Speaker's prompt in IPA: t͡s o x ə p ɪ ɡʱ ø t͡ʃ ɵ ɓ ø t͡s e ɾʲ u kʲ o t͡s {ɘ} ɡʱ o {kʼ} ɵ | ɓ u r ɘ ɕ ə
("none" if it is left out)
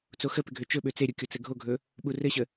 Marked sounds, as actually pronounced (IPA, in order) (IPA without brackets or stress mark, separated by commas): ɘ, ɡʱ